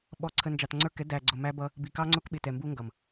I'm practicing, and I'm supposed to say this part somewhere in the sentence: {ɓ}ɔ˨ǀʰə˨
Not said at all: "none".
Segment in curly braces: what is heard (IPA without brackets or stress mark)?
ɓ